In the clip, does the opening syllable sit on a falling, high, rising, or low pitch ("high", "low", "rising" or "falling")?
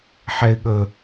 high